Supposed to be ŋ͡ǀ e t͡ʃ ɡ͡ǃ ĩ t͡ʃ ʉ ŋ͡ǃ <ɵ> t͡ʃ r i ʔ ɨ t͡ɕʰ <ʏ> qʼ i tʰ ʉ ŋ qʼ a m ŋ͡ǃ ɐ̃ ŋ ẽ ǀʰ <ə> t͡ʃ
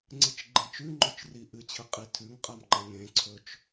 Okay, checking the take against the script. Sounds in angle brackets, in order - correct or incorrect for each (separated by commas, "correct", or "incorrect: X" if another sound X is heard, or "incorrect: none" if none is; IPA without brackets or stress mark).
correct, incorrect: ɨ, incorrect: ɵ